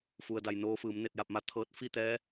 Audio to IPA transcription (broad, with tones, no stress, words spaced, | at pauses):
fu˩ə̯da˩j noː˧fɯː˩˧m ne˧˩t̚ja˧˩p̚ma˧ t̪ʰɤː˧t̚fi˥˨t̪ɛː˧˥